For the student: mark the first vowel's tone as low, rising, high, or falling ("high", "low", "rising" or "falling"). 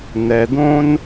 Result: low